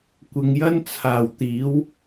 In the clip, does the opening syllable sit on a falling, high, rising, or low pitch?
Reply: low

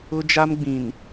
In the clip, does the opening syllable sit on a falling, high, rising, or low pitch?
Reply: high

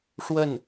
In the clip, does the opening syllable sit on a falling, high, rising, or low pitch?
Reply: falling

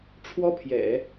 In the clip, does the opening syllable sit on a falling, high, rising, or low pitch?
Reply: high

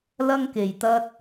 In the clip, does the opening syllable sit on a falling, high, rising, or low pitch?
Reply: high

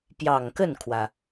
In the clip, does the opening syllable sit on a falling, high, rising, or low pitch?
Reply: low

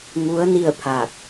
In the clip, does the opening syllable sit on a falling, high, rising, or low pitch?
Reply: rising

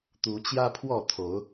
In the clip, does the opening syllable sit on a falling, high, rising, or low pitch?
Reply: rising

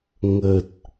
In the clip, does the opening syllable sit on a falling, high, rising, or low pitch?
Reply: low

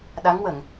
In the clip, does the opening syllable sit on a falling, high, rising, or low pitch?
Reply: rising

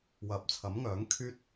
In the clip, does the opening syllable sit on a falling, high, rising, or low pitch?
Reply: low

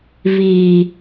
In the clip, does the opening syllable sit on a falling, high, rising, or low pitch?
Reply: low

